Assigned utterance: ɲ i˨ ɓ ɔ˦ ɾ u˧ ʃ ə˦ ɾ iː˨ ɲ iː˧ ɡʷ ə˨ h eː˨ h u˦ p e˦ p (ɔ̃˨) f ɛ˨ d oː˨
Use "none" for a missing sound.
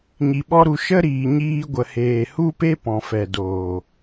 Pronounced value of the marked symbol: ɔ̃˨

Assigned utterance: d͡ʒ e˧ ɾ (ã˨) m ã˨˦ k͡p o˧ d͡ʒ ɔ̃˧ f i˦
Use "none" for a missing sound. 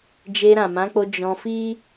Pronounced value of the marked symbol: ã˨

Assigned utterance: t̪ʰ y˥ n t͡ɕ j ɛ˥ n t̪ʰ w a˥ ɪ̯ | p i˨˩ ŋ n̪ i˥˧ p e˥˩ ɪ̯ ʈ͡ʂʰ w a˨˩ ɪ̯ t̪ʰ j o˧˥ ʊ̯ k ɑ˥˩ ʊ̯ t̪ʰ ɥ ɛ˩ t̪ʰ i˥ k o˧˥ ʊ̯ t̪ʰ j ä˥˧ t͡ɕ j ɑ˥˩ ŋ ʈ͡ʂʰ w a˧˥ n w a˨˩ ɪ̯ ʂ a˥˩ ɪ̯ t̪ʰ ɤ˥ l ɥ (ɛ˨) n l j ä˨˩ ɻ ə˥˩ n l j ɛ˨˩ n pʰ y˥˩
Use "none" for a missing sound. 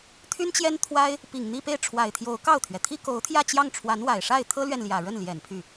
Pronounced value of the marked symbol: ɛ˨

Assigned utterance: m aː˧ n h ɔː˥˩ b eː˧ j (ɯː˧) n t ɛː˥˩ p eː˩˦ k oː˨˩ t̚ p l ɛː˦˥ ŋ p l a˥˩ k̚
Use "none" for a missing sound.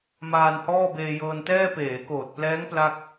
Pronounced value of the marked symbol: ɤː˧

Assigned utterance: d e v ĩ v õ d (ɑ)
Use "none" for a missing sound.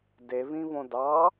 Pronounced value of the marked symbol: ɑ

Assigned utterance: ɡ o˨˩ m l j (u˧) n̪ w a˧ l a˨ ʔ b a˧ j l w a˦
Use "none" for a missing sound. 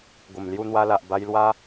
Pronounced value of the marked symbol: u˧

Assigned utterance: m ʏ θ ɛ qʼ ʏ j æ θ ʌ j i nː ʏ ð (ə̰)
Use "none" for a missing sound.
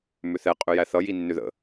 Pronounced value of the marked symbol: ə̰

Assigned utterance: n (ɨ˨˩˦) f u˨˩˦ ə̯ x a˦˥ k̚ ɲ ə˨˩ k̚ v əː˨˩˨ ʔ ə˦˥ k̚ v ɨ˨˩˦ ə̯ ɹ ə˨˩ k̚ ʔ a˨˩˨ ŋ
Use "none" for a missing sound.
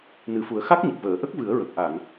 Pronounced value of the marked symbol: ɨ˨˩˦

